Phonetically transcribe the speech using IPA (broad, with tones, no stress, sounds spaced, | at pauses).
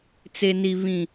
t͡s e˦ n i˦ β ĩ˦